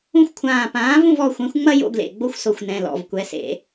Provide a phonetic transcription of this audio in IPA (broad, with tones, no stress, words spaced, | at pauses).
ũ˦xʷkʷʰãː˧˩ pãː˩˥ vũ˥˩vɔ˩˧˩xʷɛ̃˩˥xʷŋ͡mɐ˦ jo̰˦ɡlḛ˧˩ɡ͡bo˦xʷ so˧˩xʷnɛ̃˩˧˩ lɔ̰˩˧˩vkʷɛ˩˥sḛ˨˩˦